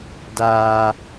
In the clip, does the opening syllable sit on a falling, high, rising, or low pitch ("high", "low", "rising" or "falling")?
high